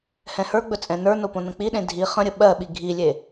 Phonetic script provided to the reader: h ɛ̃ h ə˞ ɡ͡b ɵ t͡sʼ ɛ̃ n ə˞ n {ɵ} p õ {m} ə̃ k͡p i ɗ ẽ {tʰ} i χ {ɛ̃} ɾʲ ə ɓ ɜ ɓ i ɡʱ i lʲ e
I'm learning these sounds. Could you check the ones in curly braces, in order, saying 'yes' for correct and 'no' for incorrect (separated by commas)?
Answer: no, no, no, no